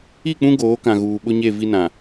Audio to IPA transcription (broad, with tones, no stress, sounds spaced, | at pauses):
i˦˨ k͡p ũ˦ ɡ oː˨˦ k ã˨ ɣ uː˨ ɓ ʊ˦ ɲ e˦˨ v i˦ n ã˨